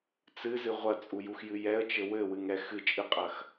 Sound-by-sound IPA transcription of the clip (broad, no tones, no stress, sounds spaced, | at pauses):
t͡s ɨ z ɨ ʁʷ ɐ t͡sʼ u j u x j ɨ j ɛ ə̯ t͡ʃ ɘ w ɘ w ɨ ŋ ɛ x ɨ t͡ʃʼ ɨ qʼ ɐ x